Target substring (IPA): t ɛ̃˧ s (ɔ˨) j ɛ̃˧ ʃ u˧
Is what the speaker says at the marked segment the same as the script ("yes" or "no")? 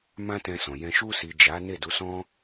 no